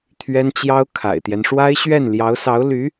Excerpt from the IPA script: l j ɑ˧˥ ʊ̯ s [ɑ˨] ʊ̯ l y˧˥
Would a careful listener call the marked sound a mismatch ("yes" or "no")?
yes